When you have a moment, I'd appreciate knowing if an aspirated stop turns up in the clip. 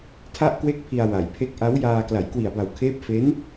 yes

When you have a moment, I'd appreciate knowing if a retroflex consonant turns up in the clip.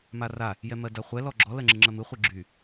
no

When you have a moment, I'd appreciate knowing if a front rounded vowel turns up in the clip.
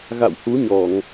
no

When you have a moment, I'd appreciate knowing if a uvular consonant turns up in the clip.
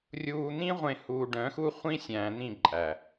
yes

